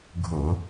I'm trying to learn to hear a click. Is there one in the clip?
no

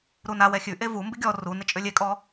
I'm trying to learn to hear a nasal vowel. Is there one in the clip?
no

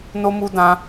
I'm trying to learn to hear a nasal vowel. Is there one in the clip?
yes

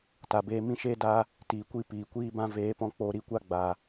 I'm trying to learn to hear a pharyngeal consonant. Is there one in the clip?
no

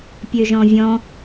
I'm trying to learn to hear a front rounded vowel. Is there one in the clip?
yes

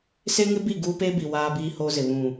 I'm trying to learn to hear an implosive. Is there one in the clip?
no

